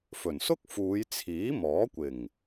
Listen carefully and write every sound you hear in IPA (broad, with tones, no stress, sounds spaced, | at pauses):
f ɵ˨˩ n s ʊ˥ k̚ f uː˨˧ j t͡sʰ iː˨˥ m ɔː˨˥ kʷ ɪ˨˩ ŋ